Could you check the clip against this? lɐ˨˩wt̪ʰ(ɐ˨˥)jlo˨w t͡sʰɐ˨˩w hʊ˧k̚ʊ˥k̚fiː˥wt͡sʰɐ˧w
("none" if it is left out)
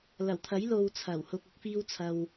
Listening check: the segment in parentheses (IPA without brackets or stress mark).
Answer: ɐ˨˥